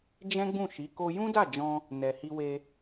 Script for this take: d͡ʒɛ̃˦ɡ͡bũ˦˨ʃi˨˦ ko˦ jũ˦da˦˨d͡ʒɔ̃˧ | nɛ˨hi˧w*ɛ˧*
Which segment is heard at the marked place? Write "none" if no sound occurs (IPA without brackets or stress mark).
e˧